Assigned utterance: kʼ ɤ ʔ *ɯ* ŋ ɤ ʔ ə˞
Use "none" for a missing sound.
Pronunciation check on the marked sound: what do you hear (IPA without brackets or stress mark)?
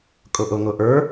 ɤ